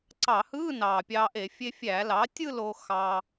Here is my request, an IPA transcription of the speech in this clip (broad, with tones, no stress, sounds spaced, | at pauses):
ǀ ɑ˧˩˧ h ɯː˧˥˧ n ɑː˨˩ pʲ ɑː˧ ʔ e˧˩˧ fʲ e˧ fʲ æː˧˩˧ l ɑ˩˥ tʲ ɯ˥˧ l oː˧ x ɑ˧